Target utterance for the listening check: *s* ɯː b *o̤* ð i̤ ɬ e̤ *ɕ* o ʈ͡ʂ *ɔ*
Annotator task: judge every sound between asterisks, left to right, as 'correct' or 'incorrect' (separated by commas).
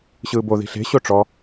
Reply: incorrect, incorrect, correct, correct